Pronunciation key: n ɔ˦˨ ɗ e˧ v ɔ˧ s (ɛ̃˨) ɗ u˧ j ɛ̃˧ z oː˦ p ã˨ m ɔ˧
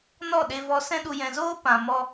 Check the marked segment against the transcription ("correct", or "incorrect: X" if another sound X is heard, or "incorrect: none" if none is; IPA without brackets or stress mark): incorrect: ɛ̃˦